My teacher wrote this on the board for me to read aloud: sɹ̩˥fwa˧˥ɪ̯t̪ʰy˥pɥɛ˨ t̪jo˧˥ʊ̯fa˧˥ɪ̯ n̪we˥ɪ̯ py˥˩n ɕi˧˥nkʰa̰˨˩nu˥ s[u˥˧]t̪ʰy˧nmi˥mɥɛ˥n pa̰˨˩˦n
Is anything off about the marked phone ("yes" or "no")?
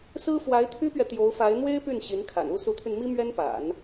yes